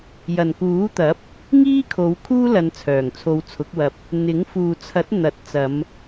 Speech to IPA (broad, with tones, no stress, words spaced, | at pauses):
jɐ˨˩nkuː˨˥t̪ɐ˨˥p̚ | ŋiː˥kʰo˨˧w kʰuː˥lɐ˨˧n t͡sʰœː˨˩ŋt͡sʰo˨˧wt͡sʰʊ˨˥k̚wɐ˧p̚ | n̪ɪ˨˥ŋ fuː˨t͡sʰɐ˨˥t̚ n̪ɐ˨˥t̚ t͡sɐ˨˧m